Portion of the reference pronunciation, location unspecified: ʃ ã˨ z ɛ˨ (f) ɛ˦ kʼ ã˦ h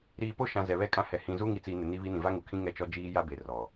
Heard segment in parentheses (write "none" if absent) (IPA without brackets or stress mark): β